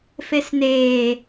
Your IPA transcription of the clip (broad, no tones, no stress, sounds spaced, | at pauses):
f e s n eː